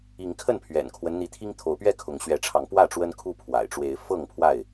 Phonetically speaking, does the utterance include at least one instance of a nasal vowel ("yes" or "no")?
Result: no